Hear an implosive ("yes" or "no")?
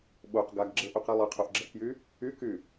yes